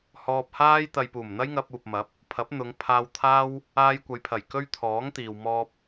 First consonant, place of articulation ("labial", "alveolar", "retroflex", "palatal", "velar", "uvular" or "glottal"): glottal